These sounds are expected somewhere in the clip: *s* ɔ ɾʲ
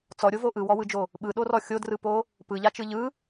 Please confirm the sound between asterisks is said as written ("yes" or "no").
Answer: no